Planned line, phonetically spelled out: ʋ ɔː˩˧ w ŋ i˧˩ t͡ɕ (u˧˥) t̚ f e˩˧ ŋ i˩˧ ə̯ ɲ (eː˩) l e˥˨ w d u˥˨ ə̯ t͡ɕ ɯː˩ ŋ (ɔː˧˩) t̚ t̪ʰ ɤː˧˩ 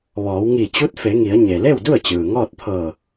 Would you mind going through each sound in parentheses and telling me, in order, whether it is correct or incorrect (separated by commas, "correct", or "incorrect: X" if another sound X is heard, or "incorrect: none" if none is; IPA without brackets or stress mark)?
correct, incorrect: e˩, incorrect: ɔː˥˨